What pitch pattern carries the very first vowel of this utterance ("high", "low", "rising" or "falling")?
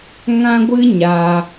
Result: high